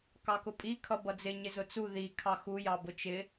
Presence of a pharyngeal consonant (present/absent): absent